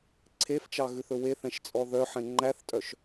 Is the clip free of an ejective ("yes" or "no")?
no